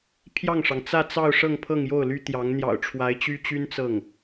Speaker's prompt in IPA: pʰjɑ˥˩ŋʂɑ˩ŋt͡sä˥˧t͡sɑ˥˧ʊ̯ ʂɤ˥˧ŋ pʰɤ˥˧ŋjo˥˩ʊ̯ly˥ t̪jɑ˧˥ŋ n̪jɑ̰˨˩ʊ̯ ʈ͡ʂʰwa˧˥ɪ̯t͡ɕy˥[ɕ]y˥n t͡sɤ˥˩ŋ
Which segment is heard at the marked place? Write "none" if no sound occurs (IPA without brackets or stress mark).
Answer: t͡ɕ